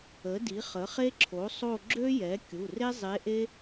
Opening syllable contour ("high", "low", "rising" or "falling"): rising